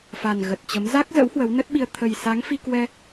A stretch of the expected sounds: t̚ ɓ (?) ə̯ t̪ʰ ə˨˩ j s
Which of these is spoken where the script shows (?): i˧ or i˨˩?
i˧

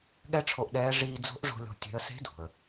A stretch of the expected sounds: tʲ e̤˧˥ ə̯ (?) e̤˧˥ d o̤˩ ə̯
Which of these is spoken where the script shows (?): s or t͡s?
s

